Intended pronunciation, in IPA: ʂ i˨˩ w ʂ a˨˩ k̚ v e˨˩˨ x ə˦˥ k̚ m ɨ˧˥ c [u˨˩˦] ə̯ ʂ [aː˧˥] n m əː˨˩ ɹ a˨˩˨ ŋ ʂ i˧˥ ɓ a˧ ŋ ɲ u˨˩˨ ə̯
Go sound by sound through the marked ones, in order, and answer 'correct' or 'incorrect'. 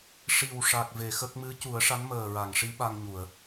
correct, incorrect

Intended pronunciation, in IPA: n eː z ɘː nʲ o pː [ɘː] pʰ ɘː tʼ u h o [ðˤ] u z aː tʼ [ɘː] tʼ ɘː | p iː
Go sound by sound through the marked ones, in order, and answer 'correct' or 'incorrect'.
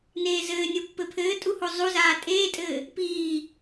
incorrect, incorrect, incorrect

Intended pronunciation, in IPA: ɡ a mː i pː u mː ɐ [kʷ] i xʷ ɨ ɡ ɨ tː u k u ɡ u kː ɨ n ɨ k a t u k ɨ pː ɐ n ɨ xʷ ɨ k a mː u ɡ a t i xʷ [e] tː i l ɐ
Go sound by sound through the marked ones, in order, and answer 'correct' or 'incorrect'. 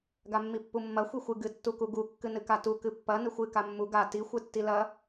incorrect, incorrect

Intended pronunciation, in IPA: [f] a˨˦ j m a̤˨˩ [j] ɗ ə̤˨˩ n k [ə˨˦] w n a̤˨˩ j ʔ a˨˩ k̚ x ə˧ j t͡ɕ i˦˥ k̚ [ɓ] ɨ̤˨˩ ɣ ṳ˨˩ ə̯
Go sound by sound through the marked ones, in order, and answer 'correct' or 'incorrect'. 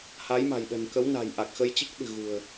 incorrect, correct, correct, incorrect

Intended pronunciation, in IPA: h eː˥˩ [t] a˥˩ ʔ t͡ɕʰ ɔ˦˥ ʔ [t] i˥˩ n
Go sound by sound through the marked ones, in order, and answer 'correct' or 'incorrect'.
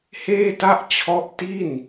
correct, correct

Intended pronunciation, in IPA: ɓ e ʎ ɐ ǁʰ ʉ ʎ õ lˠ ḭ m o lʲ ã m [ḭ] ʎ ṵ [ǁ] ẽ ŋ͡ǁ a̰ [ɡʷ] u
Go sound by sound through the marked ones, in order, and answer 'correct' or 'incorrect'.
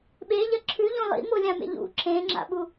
incorrect, correct, incorrect

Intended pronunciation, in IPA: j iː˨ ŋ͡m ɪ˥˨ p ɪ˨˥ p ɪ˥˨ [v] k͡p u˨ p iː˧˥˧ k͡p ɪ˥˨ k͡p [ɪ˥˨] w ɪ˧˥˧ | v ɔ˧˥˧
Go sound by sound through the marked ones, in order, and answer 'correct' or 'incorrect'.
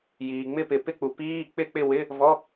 incorrect, correct

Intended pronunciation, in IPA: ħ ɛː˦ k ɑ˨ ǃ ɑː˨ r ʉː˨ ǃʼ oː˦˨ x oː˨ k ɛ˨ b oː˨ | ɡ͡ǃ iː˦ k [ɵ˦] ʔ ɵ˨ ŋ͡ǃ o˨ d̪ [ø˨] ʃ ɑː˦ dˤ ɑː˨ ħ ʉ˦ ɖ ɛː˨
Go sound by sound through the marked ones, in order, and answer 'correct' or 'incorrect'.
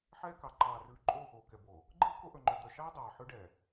incorrect, incorrect

